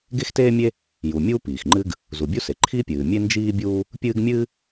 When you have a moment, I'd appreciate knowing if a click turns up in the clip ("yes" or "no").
yes